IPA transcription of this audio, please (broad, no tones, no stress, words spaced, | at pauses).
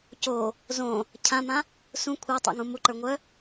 co | zõ | cʰãmã | sũ kʷʰɛtˤṵŋũ muǃə˞ŋʷœ